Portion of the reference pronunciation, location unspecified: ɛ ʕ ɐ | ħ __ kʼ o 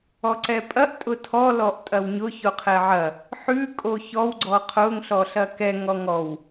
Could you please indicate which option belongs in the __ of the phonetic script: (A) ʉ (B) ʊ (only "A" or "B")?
A